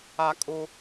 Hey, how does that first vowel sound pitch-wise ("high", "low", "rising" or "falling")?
high